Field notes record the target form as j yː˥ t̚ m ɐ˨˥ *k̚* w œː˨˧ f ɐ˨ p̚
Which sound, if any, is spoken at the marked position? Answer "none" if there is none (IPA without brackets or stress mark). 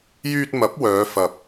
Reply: p̚